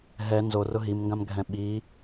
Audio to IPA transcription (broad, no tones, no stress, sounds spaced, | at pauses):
ɦ ɛ n z o r ʊ ɦ i m ŋ ɡ ã m ɡʱ ɛ̃ ɓ i